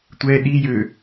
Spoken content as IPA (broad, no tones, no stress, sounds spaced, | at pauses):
tʷ ɛ ɗ i j ø